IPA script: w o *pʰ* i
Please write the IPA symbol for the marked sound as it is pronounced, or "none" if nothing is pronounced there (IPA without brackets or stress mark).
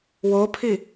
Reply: pʰ